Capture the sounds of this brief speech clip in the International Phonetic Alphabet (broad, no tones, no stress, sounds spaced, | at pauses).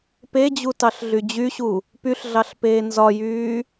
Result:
p e d͡ʑ u t ɑ ɬ ɮ y d͡ʑ y ɕ u | p y ɬ ɮ ɑ ɬ p eː n z ɒ j yː